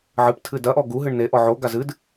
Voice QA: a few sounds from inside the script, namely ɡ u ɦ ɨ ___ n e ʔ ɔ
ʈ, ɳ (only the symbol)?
ɳ